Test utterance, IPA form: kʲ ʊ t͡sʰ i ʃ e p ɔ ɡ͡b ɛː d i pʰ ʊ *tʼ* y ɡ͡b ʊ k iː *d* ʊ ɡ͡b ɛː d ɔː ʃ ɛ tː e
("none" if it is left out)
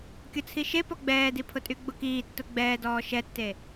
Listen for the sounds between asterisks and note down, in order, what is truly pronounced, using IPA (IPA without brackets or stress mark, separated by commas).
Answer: tʼ, tː